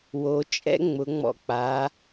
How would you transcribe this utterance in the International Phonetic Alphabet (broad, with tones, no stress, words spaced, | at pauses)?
wo˩˧t͡ʃʼɛ̰˥ ŋ͡mʊ˩˧ŋ͡mɔ̰˧ k͡pa˩˧